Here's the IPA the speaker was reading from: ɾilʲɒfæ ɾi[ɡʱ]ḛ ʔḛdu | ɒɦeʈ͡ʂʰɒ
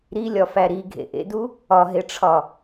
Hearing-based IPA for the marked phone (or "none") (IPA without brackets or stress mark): ɡʱ